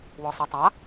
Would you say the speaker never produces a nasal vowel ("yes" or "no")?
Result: yes